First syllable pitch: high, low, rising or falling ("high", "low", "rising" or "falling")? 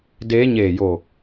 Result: rising